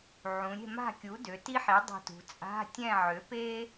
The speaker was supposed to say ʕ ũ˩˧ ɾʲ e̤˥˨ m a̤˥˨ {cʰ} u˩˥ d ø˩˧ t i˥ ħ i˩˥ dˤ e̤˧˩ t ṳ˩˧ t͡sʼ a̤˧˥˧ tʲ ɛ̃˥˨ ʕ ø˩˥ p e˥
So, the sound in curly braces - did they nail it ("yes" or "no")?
no